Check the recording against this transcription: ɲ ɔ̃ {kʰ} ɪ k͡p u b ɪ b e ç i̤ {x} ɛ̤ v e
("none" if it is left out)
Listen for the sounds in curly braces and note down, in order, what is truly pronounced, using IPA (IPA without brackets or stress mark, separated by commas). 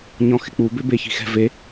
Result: x, x